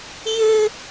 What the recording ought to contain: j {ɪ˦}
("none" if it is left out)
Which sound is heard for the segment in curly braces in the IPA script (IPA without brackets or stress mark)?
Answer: ɪ˦